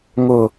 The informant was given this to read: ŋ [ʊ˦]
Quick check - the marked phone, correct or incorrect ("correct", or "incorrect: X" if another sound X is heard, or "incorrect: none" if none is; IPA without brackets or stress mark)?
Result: correct